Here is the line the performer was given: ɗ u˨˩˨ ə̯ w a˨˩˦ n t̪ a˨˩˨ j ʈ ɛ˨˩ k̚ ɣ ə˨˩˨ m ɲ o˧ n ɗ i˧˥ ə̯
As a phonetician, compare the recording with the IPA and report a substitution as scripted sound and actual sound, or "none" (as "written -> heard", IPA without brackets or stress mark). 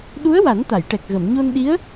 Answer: u˨˩˨ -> u˧˥